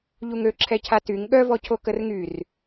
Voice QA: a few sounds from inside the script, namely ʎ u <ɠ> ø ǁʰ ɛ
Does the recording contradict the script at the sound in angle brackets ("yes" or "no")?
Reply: yes